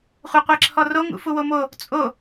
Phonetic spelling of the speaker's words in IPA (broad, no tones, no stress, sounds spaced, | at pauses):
χʷ e qʷ e ǁʰ ɔ r o ŋ ṵ f u w o m o | t͡sʼ o